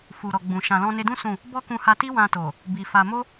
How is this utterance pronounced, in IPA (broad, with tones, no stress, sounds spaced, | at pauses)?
f u˨ ɾ ɔ˨ ɡ͡b ũ˨ ʃ ã˨ l ɔ̃˧ n e˧ d ũ˦ s ũ˦˨ | b ɔ˦ k ũ˧ h a˧ t i˦ w ã˧ t o˨ | b i˨ f a˧ m o˦